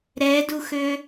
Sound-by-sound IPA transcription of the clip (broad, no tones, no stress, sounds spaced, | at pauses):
ɾ ɛ d u x ø